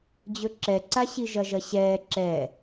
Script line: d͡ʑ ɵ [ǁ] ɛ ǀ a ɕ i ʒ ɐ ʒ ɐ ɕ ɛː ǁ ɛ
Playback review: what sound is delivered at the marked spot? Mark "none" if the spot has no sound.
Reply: ǁ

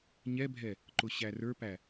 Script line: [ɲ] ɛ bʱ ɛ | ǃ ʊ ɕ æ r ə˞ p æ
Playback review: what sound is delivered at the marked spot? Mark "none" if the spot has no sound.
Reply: ɲ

